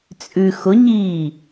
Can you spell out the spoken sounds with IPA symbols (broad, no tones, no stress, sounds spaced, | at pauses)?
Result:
t͡sʼ ʉ x ʊ ɲ iː